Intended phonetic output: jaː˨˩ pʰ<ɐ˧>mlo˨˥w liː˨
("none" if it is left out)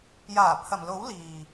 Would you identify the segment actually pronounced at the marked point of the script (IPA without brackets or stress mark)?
ɐ˨˩